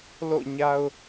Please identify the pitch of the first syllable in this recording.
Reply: falling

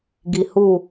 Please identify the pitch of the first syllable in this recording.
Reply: low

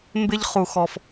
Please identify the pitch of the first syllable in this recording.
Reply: high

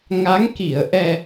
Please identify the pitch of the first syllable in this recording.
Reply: rising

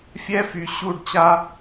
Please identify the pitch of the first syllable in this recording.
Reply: high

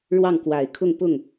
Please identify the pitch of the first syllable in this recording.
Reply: falling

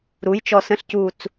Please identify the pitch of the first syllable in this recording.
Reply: rising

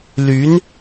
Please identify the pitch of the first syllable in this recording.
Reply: rising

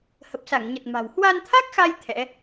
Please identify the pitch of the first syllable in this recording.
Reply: low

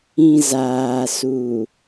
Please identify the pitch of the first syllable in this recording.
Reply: low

